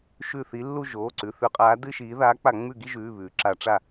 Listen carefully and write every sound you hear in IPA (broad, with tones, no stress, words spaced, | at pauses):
ʃʉ˧˩θi˨˦ lːu˥˧ ʒoː˩˧˩ǀʉ˩˧˩θʉ˧˩˧qʼaː˨˦ dɨ˥˧ʃiː˨˦ ðaː˨˦k͡pa˧˩˧ŋ͡mʉ˧˩ɡi˥˧ ʒʉː˩˧˩ βʉː˩ǁa˧˩˧ ʈ͡ʂa˧˩